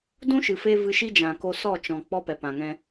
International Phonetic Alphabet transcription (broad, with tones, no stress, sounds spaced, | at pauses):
d ũ˦ ʃ ɨ˨ f e˦ v ɨ˧ ʃ i˦ d͡ʒ ã˨ k o˧ s ɔ˦˨ t͡ʃ ɔ̃˨ k͡p ɔ˦ p ɛ˨ p ã˨ ŋ ɛ̃˧